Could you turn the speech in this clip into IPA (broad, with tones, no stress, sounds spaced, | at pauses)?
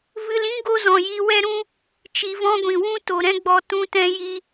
v ɨ˧ l ĩ˦ ɡ o˦ z ɔ̃˨ j i˧ w ɛ˦ ɾ ũ˦ | t͡ʃ i˧ v ɔ̃˦ ɡʷ ĩ˨ w ũ˦ t o˨ ɾ ɛ̃˦ ɡ͡b ɔ˧ t ũ˦ t ɛ̃˦ j i˦